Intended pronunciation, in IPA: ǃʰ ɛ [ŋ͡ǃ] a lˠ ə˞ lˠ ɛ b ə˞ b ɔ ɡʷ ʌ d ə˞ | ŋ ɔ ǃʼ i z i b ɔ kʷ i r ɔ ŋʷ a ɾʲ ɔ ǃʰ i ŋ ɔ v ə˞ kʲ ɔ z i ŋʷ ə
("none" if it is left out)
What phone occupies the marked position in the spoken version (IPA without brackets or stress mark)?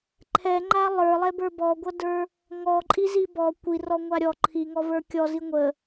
ŋ͡ǃ